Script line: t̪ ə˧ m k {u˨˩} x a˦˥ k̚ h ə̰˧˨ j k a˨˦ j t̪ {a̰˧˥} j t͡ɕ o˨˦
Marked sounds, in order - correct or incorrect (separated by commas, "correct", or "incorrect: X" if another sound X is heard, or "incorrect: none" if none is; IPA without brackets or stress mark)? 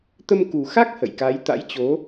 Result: correct, correct